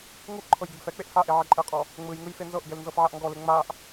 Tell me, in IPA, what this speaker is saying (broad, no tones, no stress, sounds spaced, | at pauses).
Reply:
ŋ u ʔ ǃʰ ɤ j ɡ e ɡ f ɛ k͡p e ʔ h a ʔ e ʕ ɛ ǃʼ ɛ qʼ ɔ | ŋ͡m ɯ j ŋ ɯ j f e n z ɤ ʔ ɡ ɛ l n z ɤ f ʕ a ʔ ŋ ɡ ɔ l e ŋ͡m a ʔ